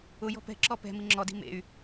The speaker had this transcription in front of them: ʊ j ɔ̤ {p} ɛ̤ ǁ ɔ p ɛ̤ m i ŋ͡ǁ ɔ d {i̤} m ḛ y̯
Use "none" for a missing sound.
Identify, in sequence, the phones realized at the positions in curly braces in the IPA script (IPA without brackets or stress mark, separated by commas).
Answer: p, i̤